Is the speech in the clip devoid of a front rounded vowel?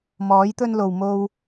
yes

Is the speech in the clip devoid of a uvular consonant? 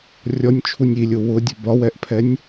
yes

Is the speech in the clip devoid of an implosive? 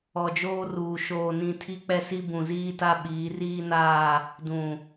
no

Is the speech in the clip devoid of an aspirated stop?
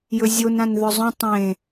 yes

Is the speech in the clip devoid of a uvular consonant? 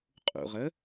no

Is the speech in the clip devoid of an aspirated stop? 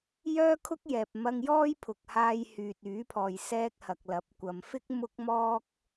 no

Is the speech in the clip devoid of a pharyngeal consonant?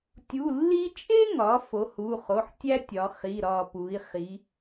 no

